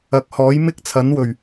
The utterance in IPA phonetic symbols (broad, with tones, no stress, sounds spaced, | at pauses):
ɐ˨˥ k̚ h ɔː˨˥ j m ɪ˥ k̚ t͡sʰ ɐ˨˥ n w ɵ˨˩ ɥ